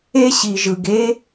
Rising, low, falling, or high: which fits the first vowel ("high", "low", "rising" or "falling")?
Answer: high